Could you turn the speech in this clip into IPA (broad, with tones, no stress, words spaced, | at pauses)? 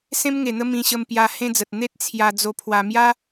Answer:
sẽ˧mŋe˨˩n̪ə˧ mĩ˧ɕə˧mpja˧ hẽ˧d͡zə˨t̚ n̪e˦t̚ t͡sʰja˧ d͡zo˧ pʰwa˧mja˦